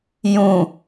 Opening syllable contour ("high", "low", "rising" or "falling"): low